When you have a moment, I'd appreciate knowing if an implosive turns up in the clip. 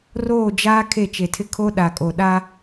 yes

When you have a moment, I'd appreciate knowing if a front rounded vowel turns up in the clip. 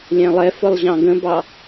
no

